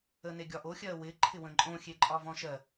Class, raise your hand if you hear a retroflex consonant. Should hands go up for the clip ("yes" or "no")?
no